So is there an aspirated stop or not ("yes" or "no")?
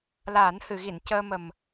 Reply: no